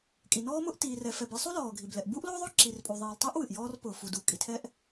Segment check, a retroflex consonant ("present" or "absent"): absent